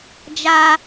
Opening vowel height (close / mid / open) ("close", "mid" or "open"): open